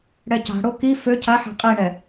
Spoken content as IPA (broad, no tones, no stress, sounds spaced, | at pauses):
ɽ ɛ c a̤ ɽ o k i f ø cʰ a ħ a̤ qʼ i ɳ ɛ